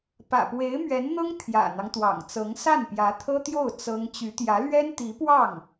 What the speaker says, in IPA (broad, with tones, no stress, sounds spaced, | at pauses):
p ä̰˨˩ p w e˧˥ ɪ̯ m ɥ ɛ˧˥ n n̪ ɤ˥ ŋ t̪ʰ j ä̰˨˩ n̪ ɑ˦ ŋ t̪ w ɑ̰˨˩ ŋ t͡s ɤ˧˥ ŋ s a˥˩ n p j ä˧˥ t̪ʰ ɤ˥ t̪ j o˥˩ ʊ̯ t͡s ɤ˥ ŋ t͡ɕ y˧˥ t̪ j ä˧˥ l ɥ ɛ˥ n t̪ i˧˥ p w ɑ˥˩ ŋ